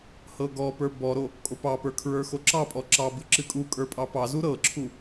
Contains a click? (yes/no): yes